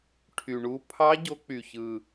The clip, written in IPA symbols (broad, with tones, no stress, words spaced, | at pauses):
ʈʰy˨˩ɳu˧˥ pʰɑ˧˥ ɟo˧˥k͡py˨˩çɯ˨˩